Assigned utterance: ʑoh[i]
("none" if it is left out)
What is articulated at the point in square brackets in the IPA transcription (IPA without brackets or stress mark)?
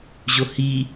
i